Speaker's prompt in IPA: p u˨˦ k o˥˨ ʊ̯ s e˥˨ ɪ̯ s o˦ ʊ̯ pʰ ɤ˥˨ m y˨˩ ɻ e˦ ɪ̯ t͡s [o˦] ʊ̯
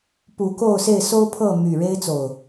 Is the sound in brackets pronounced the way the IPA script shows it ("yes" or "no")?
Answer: no